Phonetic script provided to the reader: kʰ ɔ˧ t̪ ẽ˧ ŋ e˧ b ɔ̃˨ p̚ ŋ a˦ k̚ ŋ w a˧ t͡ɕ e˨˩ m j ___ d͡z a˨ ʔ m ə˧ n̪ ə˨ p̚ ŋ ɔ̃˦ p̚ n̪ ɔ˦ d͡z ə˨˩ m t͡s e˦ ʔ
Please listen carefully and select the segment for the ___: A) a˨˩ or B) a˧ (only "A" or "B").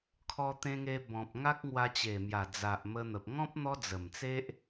A